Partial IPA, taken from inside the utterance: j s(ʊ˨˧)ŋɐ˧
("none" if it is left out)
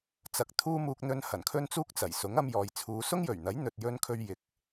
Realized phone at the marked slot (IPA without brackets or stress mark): ʊ˨˥